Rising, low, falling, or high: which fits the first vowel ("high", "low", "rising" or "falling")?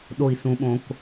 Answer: low